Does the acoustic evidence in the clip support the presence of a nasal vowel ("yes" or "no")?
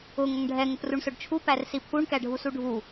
no